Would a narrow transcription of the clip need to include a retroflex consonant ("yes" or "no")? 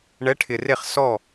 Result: yes